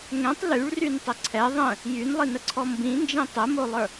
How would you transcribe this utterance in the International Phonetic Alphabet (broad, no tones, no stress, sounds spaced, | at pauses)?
ŋ ɛ̃ tˤ l y ɭ r y n tˤ ə ǀʰ ɛ ðˤ ə̃ | j y n lˠ i n ə ǀʰ ɔ m b ĩ n d͡ʒ ĩ tˤ ə m o lˠ ə˞